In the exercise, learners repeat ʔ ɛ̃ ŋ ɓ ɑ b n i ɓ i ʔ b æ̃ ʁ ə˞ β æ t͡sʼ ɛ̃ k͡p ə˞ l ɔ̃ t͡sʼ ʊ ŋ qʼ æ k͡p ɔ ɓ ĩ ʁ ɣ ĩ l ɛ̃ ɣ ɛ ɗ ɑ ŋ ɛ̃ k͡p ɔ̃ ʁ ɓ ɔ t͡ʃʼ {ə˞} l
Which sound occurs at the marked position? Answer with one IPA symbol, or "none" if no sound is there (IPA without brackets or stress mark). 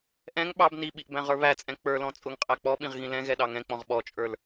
ə˞